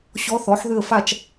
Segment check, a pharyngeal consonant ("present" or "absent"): present